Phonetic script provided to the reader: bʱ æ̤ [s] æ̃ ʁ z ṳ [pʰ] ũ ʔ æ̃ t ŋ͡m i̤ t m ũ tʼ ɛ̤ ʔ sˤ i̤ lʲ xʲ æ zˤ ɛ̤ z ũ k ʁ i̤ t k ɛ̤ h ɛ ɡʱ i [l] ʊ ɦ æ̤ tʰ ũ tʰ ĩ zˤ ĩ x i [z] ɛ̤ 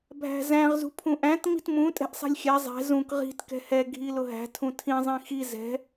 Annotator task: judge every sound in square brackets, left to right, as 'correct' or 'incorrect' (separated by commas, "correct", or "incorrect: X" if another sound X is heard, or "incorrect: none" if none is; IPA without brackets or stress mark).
incorrect: z, correct, correct, correct